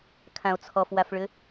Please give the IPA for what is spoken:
kʰ ã o̯ t͡sʰ ɔ f w a f ɭ ʏ

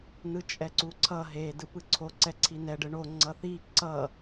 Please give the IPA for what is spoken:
n ɯ t͡ʃʼ ɛ ǀ u ǀʰ ʌ ɦ e d ɯ p ɯ ǀʰ o ǀ ɛ ǀʰ i n ɛ ɖ ɯ ɳ o ŋ͡ǀ ʌ θ i ǀ ʌ

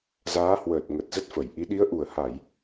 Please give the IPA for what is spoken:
z aː˨˦ h w əː˨˩ t̚ ŋ ə˨˩ t̚ z ə˦˥ t̚ f ə˧˩ j ʔ i˨˦ ɗ i˨˦ ə̯ ʔ u˨˩ ə̯ h a˧˩˨ j

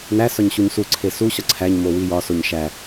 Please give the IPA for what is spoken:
n æ s ɒ ɲ ɕ u ɲ s u ǀʰ e s u ɕ ɒ ǀʰ æ ɲ m o w i j ɒ s o ɲ ʃ æ

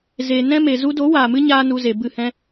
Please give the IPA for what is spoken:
z e˨ n ɛ̃˦ m e˨ z u˧ d o˨˦ w aː˨ m ɨ˦ ɲ aː˦ n u˧ z e˨ b ɨ˦˨ h ɛ̃˦

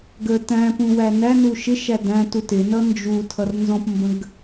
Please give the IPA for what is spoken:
ɡ ə t æ̃ p ũ w æ n æ n u ʃ ɪ ʃ æ d æ̃ t u t ɪ n ʌ n d͡ʒ u tʰ ʌ r n z ɔ̃ p m b ə̃ ɡ

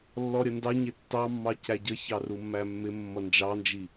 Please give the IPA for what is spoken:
lː ɔ ɾʲ ə n d ɑ ɲ ɪ tː ɑ mː ɑ c æ ɟ ə ç ɑ r u mː æ mː ɪ mː ʌ n d͡ʒ ɑ n d͡ʒ i

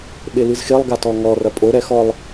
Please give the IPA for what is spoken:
ɓ e l ɨ z x e lˠ ɡ a t ɔ ŋ ɔ r ɐ pʼ o ɾ ɛ x ɔ lˠ

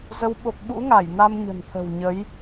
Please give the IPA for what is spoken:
z ə˨˦ w ɓ o˨˩ k̚ ɓ ṵ˧˥ ŋ a˧˩ j n a˧ m ɲ ə̤˨˩ n t̪ʰ ə̤˨˩ w ɲ ə˨˦ j

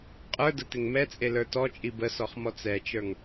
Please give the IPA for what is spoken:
qʼ ə˞ d ə t ɪ ŋ m ɛ t͡sʼ e l ə˞ t ɔ t͡ʃʼ i b ə s ɔ χ m ɔ t͡s ɛ t͡ʃ ə˞ ŋ

